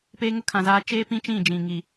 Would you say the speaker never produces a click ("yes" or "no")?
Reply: yes